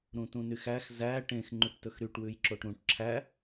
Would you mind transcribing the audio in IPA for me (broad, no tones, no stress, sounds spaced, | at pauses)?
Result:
ɾ ũ t ũ n y x æ x z æ ʈ ẽ x ŋ͡ǃ ʉ ʈ t ɵ x ɾ y ʈ w ʉ j ǁ o ʈ ɾ ũ ʈ ǁʰ æ